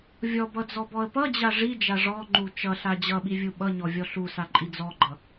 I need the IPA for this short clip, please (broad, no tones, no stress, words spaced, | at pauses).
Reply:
vʲɔbʌd͡zɔbɔə̯ pʌd͡ʑa ʐid͡ʒa ʐɔŋ͡ǃu t͡ʃʌɬa d͡ʑʌɓivʲu ɓʌɲɔvʲɔ ɬusaǃʼi d͡zɔɡ͡ǃʌ